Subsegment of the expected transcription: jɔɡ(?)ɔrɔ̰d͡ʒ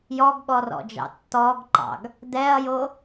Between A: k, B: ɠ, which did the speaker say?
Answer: B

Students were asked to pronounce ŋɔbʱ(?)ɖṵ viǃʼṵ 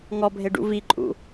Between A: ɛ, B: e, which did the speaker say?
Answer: B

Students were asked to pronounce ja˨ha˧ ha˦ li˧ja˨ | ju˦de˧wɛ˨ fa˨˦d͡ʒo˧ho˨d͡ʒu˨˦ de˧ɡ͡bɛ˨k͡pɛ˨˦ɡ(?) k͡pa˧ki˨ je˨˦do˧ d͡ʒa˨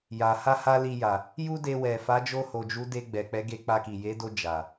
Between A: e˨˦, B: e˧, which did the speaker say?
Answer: B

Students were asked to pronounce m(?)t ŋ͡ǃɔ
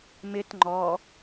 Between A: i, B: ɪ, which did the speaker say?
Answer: B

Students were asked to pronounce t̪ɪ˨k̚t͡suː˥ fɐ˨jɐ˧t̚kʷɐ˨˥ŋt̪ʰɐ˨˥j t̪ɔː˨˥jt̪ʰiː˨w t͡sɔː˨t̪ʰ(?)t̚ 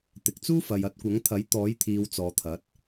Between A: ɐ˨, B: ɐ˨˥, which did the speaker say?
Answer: B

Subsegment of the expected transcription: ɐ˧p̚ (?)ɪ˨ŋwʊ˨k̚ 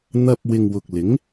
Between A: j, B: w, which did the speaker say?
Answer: B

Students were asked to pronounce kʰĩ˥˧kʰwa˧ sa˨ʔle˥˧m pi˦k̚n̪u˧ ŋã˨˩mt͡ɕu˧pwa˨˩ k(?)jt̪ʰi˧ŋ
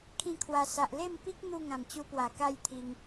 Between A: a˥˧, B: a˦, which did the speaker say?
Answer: A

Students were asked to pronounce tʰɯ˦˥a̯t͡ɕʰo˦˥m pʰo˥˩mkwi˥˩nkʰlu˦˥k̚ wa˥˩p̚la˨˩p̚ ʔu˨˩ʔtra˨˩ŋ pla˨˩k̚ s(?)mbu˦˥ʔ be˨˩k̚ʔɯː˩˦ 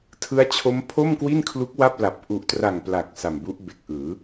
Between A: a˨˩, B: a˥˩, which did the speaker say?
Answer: A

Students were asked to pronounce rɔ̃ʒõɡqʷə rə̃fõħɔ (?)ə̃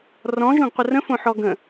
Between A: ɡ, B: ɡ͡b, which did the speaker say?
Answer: A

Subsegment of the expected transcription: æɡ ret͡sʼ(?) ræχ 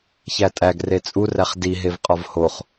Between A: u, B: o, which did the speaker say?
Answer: A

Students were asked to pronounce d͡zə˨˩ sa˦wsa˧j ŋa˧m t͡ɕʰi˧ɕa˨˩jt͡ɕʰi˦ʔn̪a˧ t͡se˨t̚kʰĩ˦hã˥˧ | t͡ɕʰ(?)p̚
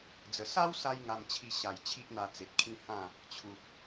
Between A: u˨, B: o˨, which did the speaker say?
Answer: A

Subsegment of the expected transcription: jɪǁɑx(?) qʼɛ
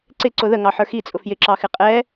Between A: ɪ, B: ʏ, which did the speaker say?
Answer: A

